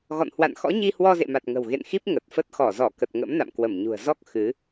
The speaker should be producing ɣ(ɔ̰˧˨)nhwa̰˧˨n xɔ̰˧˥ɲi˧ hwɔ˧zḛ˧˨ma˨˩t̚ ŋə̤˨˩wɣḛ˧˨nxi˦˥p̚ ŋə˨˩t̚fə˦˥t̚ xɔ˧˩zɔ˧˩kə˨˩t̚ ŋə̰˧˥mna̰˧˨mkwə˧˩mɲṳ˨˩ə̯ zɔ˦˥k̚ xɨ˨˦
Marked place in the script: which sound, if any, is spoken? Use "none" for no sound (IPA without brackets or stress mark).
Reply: ɔ̰˧˨